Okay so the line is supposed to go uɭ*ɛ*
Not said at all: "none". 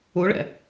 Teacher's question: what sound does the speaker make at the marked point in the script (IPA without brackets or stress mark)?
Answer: ɛ̰